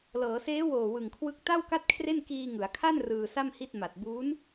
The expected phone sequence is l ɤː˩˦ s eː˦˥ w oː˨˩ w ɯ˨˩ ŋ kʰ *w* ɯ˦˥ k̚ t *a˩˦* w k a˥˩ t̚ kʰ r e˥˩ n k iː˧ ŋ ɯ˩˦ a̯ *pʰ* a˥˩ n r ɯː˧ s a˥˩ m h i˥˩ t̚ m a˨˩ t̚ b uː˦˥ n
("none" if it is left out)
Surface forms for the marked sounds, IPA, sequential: w, a˥˩, kʰ

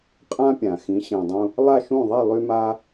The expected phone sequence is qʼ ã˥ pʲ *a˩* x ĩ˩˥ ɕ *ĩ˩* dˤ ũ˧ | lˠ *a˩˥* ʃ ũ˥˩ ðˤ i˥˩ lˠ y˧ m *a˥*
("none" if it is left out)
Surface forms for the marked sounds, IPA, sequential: ã˩, ĩ˩, a˥˩, a˧

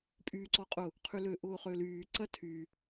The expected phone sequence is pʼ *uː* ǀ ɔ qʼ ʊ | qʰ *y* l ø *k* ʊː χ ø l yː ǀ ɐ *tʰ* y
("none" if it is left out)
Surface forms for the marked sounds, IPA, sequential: yː, y, ʔ, tʰ

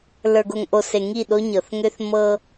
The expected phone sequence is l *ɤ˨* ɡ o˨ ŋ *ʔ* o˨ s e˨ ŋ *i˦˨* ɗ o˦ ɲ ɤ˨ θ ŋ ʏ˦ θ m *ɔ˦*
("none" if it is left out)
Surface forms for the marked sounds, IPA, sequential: ə˞˨, ʔ, i˦˨, ɤ˦

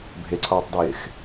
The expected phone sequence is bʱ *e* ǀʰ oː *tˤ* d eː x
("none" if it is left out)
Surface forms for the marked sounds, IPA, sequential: e, tˤ

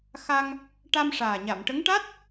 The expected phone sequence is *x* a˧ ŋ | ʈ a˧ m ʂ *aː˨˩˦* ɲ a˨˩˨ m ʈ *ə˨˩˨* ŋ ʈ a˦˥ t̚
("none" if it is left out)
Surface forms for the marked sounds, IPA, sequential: x, aː˨˩, ə˧˥

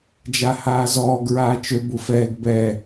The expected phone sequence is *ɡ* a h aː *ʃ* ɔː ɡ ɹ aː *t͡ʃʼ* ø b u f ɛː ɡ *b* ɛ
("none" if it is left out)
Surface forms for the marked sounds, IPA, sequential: d͡ʒ, z, t͡ʃ, b

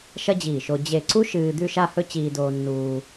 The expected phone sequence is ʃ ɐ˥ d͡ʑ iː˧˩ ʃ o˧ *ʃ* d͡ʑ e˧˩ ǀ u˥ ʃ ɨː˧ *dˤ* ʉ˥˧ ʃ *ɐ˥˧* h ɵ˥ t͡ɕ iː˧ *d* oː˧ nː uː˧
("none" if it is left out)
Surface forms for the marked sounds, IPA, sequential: none, d̪, a˥˧, d

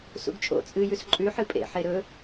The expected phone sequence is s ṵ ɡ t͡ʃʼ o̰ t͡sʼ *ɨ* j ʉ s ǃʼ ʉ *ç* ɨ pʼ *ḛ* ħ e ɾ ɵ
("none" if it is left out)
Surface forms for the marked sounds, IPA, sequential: ɨ, ħ, ḛ

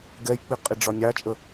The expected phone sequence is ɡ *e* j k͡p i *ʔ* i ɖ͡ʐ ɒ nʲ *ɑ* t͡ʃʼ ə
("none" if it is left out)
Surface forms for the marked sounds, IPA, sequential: ɛ, qʼ, ɑ

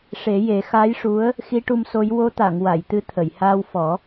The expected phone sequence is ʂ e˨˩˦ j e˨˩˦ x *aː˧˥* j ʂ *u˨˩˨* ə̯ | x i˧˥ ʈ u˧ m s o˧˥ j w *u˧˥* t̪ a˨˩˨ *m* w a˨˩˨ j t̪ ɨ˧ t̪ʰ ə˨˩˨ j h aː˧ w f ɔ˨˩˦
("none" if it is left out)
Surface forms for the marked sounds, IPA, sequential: aː˧˥, u˧˥, o˧˥, ŋ

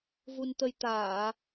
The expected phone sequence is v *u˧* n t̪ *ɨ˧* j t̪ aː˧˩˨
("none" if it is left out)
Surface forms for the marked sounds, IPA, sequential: u˧, ə˧

